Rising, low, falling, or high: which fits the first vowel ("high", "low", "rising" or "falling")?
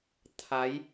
rising